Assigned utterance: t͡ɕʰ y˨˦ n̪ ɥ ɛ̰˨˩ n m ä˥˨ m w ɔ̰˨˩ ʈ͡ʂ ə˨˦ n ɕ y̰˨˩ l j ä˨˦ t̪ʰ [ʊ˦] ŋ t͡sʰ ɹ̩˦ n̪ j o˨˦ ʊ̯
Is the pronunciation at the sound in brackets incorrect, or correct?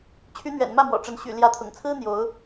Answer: incorrect